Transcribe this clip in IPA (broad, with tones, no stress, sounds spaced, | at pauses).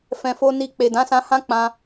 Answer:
f ɛ̃˨ f o˧ n i˧ k͡p e˨ d ã˨˦ s ã˧ h ã˦ k͡p ã˧